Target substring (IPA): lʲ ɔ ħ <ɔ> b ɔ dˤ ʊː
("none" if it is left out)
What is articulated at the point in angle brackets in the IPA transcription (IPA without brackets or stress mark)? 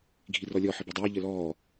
ə